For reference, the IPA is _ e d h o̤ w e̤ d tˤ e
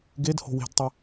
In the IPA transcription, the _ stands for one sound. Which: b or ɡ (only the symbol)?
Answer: ɡ